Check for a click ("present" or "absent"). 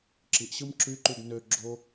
present